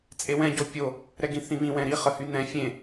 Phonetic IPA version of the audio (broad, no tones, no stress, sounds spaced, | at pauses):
t͡sʼ e w ɛ̃ ɟ o pʲ o | ɾ ɛ ɡ ĩ θ ĩ β ĩ w ɛ̃ ɾ i χ ə h y n ɛ̃ fʲ ẽ